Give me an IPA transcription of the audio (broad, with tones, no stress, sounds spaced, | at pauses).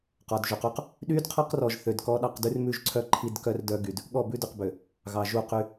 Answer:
q ɔ˨ d ʒ ʉ˨ q u˦ q | ɗ y˦ d qʰ ɔ˦ q r ɔ˨ ʒ θ ø˨ d k ɔ˦ ɗ ɑ˦ q d ʉ˦ r m ʉ˦˨ ʒ ǀʰ œ˦ ǃʰ i˦ d k œ˦ r d œ˦ ɡ y˨ d | ɠ ɔ˦˨ b ʉ˦ d ʉ˨ q b ø˨ | ɣ ɑ˨ ʒ u˦˨ q y˦